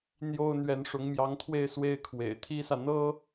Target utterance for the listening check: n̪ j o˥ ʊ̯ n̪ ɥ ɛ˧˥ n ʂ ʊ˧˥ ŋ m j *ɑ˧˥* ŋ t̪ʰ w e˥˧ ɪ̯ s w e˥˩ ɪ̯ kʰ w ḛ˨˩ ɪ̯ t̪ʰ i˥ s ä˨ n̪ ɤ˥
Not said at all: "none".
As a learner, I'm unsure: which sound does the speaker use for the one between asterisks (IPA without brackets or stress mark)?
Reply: ɑ˧˥